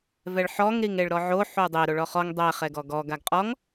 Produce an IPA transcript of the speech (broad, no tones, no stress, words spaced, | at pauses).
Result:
vɛɭħɔŋ ɾiŋeɭɾɔʕo ħudˤɪ ɾoɭɔχɔŋ dˤɛ χɛɡɔɡɔ ɡaɡqʼɔŋ